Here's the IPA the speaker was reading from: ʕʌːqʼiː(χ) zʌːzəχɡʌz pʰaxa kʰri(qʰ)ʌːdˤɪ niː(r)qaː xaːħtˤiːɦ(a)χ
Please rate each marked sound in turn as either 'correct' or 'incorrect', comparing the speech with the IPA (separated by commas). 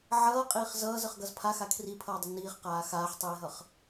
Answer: correct, incorrect, incorrect, incorrect